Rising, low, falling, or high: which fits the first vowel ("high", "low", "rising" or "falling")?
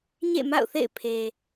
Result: falling